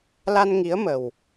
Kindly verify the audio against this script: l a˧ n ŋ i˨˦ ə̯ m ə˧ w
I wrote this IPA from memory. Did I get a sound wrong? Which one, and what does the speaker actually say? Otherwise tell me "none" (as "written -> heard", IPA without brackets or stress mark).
ə˧ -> ə˨˩